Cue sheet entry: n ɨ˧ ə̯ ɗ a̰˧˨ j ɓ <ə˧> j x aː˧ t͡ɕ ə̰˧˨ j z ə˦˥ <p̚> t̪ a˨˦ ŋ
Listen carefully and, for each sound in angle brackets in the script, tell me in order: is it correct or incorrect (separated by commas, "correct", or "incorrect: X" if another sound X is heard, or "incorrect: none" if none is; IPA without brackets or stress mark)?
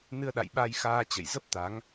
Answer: incorrect: a˧, correct